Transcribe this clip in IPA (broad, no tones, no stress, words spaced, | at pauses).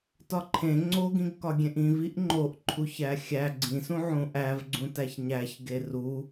tɒǃʰẽ ŋ͡ǀoɡĩɡkɒɡʲẽʔ ĩviʔ ŋ͡ǃoʔǃʰuçæ xʲæ ɡ͡ǀĩsũ ʕũʔævɡ͡ǀũ tæçɲæçɡe ru